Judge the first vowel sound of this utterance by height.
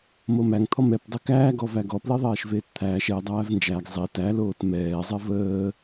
mid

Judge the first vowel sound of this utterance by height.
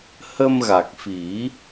mid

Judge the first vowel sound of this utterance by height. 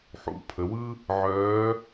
high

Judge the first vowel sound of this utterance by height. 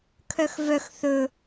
mid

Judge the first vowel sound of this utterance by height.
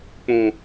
high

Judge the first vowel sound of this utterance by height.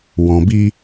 mid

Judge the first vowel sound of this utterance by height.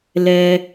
mid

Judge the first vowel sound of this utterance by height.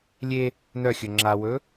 mid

